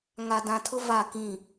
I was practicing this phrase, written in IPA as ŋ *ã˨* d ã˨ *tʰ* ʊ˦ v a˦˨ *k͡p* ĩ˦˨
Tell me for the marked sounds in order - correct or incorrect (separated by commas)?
incorrect, correct, incorrect